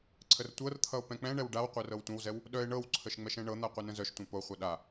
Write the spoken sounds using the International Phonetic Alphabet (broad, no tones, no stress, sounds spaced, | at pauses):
ǀʰ ə r tʷ ɤ r t̪ʰ ʌ o̯ p ɛ̃ k͡p ɛ̃ ɳ ɛ w ɖ a w qʷ œ r ɤ w tʷ ə̃ w z ɛ w | ɗ œ e̯ ɳ ɤ w ǀʰ ə ʃ ŋ͡m ɛ ʃ ɛ̃ ɳ ɤ n̪ a qʷ ɛ n ə̃ z œ ʃ tʷ ɛ̃ p o χʷ ʌ ɗ a